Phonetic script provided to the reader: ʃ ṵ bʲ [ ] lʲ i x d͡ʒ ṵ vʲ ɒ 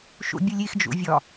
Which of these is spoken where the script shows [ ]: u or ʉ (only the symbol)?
u